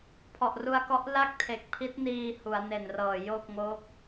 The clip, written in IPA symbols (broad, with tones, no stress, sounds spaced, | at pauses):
pʰ ɔ˨˩ ʔ r u˧ a̯ k ɔ˦˥ ʔ l a˥˩ k̚ tʰ e˨˩ k̚ pʰ i˦˥ t̚ n iː˧ h u˩˦ a̯ n e˨˩ n r ɤː˨˩ j o˥˩ k̚ ŋ o˦˥ k̚